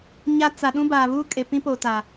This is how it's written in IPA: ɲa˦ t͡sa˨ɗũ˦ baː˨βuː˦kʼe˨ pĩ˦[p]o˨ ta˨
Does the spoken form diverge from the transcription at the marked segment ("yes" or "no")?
no